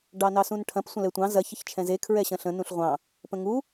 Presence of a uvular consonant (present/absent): present